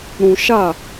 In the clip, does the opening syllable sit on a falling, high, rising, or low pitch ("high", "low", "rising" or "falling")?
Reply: low